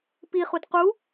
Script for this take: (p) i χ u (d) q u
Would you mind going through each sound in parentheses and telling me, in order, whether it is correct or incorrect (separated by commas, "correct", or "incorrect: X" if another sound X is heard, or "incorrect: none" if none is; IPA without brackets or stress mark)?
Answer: correct, correct